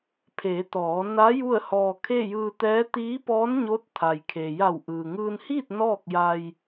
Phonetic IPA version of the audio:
pʰ eː˩˧ t̪ ɔː˩˧ n a˧˥ j u˥˨ ə̯ h ɔː˧ kʰ e˥˨ j ɯː˧ t̪ ɛː˧˥ t̪ iː˧˥ p ɔː˧˥ n ɲ o˧˥ t̚ t̪ʰ a˩ j kʰ e˩ j a˧˩ w ʔ ɯː˩ ŋ ɯː˧ n h iː˥˨ t̚ n ɔː˥˨ k̚ j a˧ j

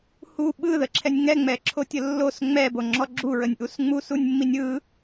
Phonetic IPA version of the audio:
h u ɓ ɯ ð ə ǁʰ ɛ nʲ ŋ ɛ ŋ͡m ɛ ǁʰ o tʲ ə lː o s ŋ͡m ɛ b o ŋ͡ǁ ɔ ɡ͡ǁ u ɹ ə nʲ ʔ u s ŋ͡m u s u nʲ mː i nʲ ɯ

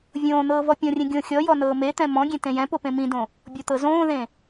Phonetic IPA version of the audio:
vʲ õː n̪ ɤː v ɔ pʲ ɔ̃ rʲ ẽ ɡʲ õ xʲ ɔ j ɔ n ɤː m e t̪ ɛ̃ m ɔ̃ ɡʲ ẽ t ẽ j ɛ̃ p o p ẽ m ĩ d õ | bʲ ɔ t̪ ɤ z õː ð ẽ

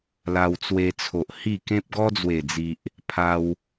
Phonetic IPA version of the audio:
l a˧ w t͡s w e˧ t͡sʰ o˨ ʔ h i˥˧ k ẽ˦ p̚ ɡ ɔ˦ d͡z w e˨˩ d͡z i˨ ʔ | pʰ a˧ w

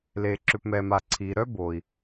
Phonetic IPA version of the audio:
l eː˩ ǁ ʏ˩ p m ɛ˩ m a˩ ǀʰ iː˩ ɾ œ˥ b oː˩ i̯

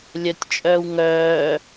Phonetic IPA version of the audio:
lʲ œ tʲ t͡ʃʼ œː w ŋ œː

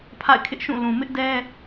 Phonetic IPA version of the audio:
pʰ a̰˦˨ ɪ̯ kʰ ɪ˦ ʔ ʃ ũ˦˨ l ũ˨ m ɪ˦ ʔ d ɛ˦

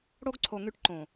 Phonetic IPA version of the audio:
ɽ o˦ ɡ ǀʰ o˨ ŋ y˧ ʈ ǃ õ˨

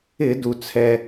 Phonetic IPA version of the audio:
ɪ˧˩˧ d u˩ t͡sʰ ɛ˩

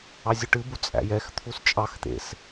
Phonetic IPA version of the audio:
ɑ zʲ ʉ ʈ ɨ b u t͡sʼ æ̰ j ɛ x t̪ʰ u s t͡ʃʼ ɑ x t̪ ḛ s

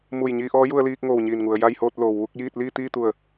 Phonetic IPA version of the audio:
m u˧˩ j ɲ iː˧ ʔ ɔː˧˥ j u˧ ə̯ l iː˧ k̚ ŋ oː˧˩ w ɲ iː˧˩ n ŋ u˩ ə̯ j a˥˨ j h oː˥˨ t̚ l oː˩ w ʋ u˥˨ k̚ j iː˥˨ t̚ l iː˥˨ t̪ iː˥˨ t̪ u˧˩ ə̯

